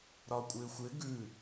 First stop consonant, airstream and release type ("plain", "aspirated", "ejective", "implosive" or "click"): ejective